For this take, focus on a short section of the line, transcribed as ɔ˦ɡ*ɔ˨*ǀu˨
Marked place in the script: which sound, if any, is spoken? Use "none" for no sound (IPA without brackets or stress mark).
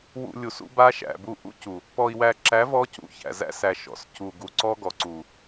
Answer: ɔ˨